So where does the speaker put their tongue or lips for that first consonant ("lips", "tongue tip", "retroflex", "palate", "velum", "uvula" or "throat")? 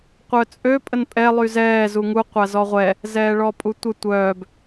uvula